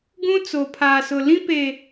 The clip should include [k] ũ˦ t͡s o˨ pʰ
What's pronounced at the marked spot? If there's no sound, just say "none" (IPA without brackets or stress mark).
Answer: ɡ